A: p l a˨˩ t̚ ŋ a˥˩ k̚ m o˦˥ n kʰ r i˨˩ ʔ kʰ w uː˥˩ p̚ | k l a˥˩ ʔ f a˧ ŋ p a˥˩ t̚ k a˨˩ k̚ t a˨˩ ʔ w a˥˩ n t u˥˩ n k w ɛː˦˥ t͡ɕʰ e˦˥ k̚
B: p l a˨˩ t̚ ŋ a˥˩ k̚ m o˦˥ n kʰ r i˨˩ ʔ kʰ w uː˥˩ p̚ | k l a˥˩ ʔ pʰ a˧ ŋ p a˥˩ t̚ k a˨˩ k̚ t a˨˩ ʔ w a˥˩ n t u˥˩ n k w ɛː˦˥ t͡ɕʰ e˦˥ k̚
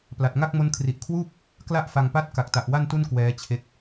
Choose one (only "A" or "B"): A